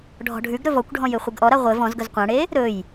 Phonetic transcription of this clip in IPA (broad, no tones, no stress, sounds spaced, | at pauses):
ɖʱ ɔ̤ ɖʱ ʉ ɡ ɾ ɵ v ɔ kʷ ɖʱ ɔ̃ j ɘ χʷ ɘ ɡ ʔ ɔ ɾ a ʁʷ ɘ v ɔ̃ z ɡ ɵ z qʷ ã ɽ e | ɾ ɵ j